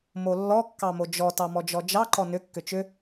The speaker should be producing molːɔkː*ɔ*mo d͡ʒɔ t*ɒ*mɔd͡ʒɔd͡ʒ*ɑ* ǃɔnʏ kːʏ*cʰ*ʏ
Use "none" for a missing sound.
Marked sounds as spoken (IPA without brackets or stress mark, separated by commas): ɑ, ɑ, ɑ, t͡ʃ